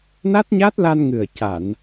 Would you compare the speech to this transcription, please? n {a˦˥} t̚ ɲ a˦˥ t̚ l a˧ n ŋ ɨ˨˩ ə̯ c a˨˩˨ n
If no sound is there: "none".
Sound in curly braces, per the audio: a˦˥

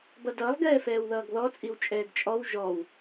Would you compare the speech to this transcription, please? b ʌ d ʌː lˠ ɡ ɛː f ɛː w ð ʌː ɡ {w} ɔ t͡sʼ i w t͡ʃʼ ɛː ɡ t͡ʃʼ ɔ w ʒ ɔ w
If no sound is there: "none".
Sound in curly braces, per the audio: ð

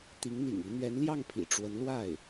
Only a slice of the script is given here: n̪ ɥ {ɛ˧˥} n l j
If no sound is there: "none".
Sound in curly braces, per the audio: ɛ˧˥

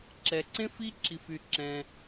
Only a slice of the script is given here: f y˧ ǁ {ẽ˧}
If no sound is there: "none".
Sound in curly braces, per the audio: ɛ̃˧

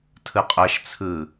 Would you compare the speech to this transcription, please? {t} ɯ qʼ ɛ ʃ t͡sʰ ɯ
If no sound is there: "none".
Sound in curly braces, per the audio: tʰ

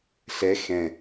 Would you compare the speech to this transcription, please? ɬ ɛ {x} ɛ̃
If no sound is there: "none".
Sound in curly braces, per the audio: x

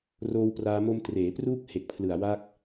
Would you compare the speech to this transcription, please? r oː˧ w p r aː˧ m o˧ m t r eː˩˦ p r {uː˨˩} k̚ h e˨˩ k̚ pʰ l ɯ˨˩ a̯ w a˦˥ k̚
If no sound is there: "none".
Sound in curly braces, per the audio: uː˦˥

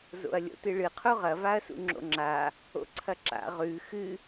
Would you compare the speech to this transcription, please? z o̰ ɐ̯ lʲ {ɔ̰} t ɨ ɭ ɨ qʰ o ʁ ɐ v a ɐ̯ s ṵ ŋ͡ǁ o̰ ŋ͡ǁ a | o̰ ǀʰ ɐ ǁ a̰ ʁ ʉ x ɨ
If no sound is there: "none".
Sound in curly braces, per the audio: o̰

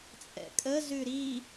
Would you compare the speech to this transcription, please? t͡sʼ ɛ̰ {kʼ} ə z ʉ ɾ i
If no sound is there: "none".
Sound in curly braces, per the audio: kʼ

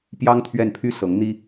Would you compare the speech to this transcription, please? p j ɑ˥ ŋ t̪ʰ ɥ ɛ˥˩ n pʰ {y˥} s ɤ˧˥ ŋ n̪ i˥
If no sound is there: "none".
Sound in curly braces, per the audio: y˥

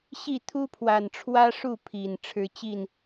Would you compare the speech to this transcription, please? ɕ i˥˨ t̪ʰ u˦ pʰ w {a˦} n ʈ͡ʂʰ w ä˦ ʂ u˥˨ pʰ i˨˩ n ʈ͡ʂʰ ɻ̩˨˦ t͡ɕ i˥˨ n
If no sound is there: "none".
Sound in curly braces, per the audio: a˨˩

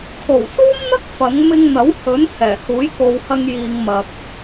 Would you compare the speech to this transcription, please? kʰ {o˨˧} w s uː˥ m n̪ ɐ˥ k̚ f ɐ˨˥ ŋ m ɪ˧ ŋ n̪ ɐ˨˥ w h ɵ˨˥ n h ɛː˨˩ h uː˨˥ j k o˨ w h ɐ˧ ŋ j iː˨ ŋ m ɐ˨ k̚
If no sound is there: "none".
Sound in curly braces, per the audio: o˨˩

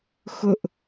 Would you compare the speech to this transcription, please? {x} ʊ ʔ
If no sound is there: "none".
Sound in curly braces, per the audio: x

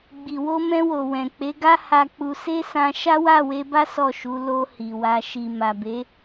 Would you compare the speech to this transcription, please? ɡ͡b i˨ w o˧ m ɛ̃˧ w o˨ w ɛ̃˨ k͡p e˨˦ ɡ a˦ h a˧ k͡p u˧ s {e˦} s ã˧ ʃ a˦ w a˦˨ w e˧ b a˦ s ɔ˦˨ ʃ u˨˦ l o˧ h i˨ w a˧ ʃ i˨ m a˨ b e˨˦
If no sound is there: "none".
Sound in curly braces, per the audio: e˦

